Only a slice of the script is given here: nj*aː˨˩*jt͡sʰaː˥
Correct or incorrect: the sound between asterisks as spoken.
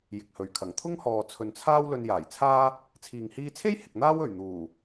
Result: correct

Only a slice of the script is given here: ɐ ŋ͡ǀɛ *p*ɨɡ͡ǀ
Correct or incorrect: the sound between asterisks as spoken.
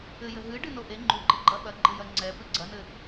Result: correct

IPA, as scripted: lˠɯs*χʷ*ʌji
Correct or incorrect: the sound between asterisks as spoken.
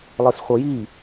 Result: correct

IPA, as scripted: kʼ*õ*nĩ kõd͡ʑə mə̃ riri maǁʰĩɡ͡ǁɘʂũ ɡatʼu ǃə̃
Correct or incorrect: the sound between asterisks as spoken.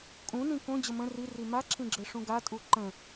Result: incorrect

